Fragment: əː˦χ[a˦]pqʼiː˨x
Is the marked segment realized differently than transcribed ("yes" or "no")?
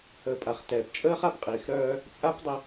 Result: no